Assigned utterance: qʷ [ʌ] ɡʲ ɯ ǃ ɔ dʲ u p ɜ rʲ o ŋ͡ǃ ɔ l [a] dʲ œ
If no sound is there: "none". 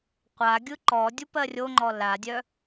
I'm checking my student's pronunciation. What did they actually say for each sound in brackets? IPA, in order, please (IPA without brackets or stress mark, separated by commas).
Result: a, a